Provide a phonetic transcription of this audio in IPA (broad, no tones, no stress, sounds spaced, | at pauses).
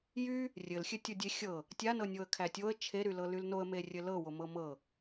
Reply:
j y | rʲ ɘ l xʲ ɘ tʲ o dʲ e xʲ ɤ | tʲ a n ɤ nʲ o ə̯ kʰ æ tʲ o ə̯ t͡ʃʰ e ɾ y l ɤ l y l n o ə̯ m e rʲ ɘ l ɤ w o m ɤ m ɤ